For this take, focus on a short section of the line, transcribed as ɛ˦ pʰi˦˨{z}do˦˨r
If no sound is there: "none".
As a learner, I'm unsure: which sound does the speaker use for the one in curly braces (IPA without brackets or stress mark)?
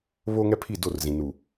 none